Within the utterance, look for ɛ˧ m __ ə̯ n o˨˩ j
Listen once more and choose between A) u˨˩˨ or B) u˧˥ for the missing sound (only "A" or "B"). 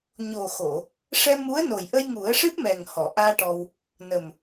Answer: B